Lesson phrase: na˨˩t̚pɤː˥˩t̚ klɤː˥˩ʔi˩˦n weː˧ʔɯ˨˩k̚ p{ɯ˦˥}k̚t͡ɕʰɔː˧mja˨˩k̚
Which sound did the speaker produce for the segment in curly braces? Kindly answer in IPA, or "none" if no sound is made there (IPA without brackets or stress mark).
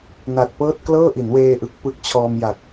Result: ɯ˦˥